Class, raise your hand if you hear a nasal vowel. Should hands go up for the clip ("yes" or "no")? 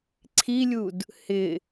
no